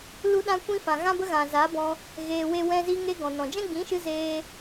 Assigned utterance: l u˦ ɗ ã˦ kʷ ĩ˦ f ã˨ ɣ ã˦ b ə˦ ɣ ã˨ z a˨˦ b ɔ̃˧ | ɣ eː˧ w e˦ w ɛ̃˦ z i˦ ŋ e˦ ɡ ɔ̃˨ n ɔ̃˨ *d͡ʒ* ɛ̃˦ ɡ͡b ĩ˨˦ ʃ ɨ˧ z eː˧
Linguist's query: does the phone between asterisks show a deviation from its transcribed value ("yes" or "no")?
no